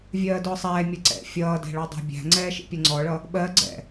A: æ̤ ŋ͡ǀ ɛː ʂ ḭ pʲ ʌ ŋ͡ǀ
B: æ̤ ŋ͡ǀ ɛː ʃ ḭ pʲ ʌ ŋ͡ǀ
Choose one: B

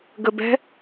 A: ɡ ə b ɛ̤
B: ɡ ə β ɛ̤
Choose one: A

